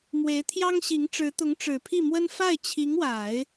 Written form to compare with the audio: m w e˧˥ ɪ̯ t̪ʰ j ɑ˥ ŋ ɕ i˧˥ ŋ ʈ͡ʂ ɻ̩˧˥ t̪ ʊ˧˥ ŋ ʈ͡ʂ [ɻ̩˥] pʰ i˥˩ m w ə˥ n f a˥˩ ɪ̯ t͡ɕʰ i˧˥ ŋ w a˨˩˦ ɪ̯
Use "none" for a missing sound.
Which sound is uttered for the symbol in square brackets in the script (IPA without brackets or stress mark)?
ɻ̩˨˩